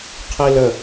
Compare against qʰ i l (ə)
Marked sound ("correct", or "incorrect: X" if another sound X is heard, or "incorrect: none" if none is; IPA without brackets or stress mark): correct